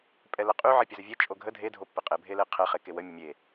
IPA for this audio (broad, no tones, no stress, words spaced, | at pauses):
pʼɛləqʼy ʕɛpʲəzəvʲe t͡ʃʼoɡʱə dʱe dʱopːeqʼe bʱeleqʰɛ χekewə mʲəmʲe